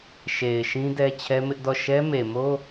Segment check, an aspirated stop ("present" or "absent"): present